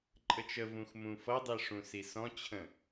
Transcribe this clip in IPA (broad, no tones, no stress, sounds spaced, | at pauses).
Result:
ǃʼ ə t͡ʃ ə v ũ x m ũ f ʌ dˤ i ʂ ũ s i s ɔ̃ t͡ɕʰ ə̃